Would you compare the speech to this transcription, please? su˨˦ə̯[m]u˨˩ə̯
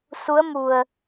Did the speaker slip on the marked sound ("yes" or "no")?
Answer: no